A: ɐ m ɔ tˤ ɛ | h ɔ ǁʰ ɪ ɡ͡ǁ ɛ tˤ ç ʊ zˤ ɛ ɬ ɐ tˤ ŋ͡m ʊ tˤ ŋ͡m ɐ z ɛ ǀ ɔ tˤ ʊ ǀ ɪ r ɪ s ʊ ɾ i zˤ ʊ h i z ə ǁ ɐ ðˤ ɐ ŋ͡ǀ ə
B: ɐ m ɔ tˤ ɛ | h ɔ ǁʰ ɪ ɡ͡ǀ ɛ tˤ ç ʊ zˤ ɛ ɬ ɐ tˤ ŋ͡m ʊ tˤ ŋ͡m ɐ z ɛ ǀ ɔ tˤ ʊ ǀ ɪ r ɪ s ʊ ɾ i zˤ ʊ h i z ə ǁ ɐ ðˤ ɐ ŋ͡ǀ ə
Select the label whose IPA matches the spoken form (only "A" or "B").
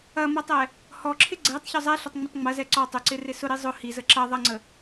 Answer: B